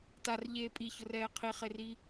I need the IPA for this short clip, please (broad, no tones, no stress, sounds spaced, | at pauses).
t a r ʎ eː pʼ i ç ʊ r ɛː qʰ i χ e r i